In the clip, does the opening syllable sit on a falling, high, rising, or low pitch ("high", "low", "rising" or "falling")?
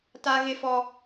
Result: high